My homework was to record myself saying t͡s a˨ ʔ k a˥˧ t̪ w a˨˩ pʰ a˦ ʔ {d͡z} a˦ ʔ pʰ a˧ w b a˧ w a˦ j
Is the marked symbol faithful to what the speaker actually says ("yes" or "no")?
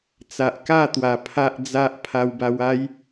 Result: yes